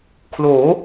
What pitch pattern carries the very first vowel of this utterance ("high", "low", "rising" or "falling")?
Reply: rising